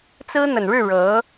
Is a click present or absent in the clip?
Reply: absent